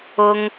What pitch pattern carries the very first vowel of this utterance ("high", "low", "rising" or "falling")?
high